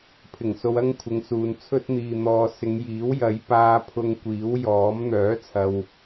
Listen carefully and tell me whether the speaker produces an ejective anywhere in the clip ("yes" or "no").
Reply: no